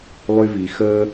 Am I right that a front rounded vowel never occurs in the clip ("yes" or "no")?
no